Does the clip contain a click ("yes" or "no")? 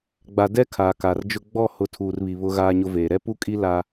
no